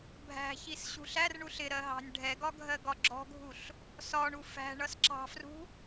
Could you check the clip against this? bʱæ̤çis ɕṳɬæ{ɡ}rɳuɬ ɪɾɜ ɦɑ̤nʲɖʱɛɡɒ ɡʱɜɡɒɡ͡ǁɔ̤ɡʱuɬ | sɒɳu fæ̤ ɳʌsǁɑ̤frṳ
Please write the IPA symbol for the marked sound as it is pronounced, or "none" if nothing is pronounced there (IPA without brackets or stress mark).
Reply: none